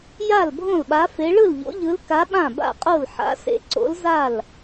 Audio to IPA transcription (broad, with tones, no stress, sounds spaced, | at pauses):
j a˥˨ l bʱ õ˥˨ l ɓ a˧˥ f e˧˥ ɭ ɯ˥˨ l ʎ o̰˧˥ ʎ ɯ˧˥ l k a˧˥ ɓ ã˥˨ b a̰˥˨ qʼ o˥˨ l ħ a̰˧˥ s ḛ˧˥ ǀ o̰˧˥ l z a˥˨ l